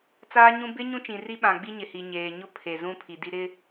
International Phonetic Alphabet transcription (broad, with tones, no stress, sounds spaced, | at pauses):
t͡s aː˦ ɲ ũ˦ b ɪ˦ ɲ ũ˦ t͡ʃ ĩ˨ r i˦ ɓ ã˨ ɡ͡b i˦ ɲ ɪ˨ h i˨ ɲ eː˨ ɲ ʊ˦ pʰ e˨ z ũ˦ pʰ i˨ d i˦ ɾ ɪ˦